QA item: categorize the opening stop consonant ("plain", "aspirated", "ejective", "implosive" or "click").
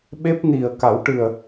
implosive